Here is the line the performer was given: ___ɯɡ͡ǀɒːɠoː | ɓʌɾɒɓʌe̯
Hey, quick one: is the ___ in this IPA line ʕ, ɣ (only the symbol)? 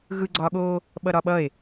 ɣ